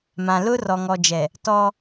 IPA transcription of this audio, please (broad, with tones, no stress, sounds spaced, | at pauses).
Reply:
m ã˨ l ʊ˦ r ɔ˨ ŋ ɔ˨ d͡ʒ ɛ˨ | t ɔ˦